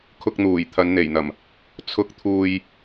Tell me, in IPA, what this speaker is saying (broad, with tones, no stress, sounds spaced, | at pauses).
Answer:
kʰ ʊ˧ k̚ n̪ uː˨˩ j t̪ʰ ɐ˨˧ n n̪ e˨˩ j n̪ ɐ˨˩ m | t͡sʰ ʊ˥ k̚ t̪ʰ uː˧ j